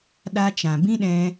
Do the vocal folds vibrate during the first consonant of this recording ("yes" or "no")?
yes